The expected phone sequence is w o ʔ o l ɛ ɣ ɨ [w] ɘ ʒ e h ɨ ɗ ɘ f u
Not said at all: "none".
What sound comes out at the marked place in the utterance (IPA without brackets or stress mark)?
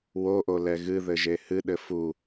ð